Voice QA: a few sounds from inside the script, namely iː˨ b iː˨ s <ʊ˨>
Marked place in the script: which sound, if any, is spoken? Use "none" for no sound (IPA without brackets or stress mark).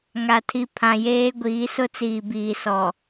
ɔ˨